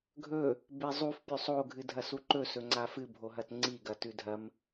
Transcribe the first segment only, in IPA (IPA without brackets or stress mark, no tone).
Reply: ɡʱ